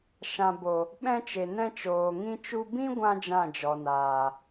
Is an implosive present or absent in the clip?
present